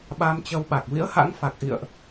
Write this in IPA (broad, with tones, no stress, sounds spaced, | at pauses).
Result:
ɓ a˧ m t͡ɕ ə˧ w ɓ a˨˩ k̚ v ḭ˧˥ ə̯ h a̰˧˥ ŋ f a˨˩ k̚ ʔ ḭ˧˨ ə̯ ʔ